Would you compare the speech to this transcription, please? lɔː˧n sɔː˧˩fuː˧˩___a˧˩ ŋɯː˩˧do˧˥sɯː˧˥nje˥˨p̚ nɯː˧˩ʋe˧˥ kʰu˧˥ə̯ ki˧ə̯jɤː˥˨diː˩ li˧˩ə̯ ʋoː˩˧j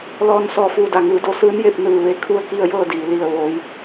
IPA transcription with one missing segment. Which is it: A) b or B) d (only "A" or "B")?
B